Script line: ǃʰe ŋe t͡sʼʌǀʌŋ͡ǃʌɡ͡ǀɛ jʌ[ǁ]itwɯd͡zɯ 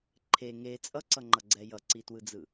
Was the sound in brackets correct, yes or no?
no